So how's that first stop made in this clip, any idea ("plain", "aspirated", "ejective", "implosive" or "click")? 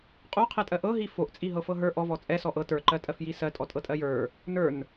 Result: ejective